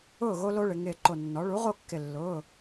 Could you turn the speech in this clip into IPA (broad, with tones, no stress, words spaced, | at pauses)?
ʊː˥˨ɣo˦ lo˦ɭɪ˩˧ ŋɪː˧˩ǃo˧˩nːɔ˩˥ ɭu˩˥ʁo˥˨kːɪ˧˩ lːʊː˩˧˩